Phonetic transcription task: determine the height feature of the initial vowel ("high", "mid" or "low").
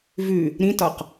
high